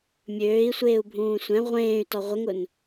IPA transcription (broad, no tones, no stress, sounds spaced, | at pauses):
mʲ øː i̯ sʷ eː u̯ bʱ ũː sʷ ɛ̃ ʁʷ ẽː y̯ t ɔ ʁʷ ə ŋ ʊ n